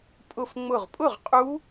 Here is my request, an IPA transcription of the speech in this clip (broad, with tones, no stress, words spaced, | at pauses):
pʼʊ˧˩f ŋ͡mʊ˧˩ʁpʼʊ˥˩ʁ qʼu˦˥